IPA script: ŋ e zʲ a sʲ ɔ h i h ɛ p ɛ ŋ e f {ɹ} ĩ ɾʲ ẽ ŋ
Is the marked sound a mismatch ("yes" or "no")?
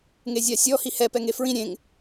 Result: no